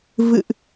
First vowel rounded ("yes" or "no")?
no